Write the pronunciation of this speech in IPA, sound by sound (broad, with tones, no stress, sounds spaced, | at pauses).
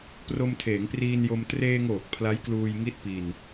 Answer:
p r o˧ m tʰ eː˩˦ ŋ p r iː˧ n j o˧ m t r eː˧ ŋ oː˨˩ k̚ pʰ l a˦˥ j k l uː˧ j ŋ i˦˥ t̚ p i˧ n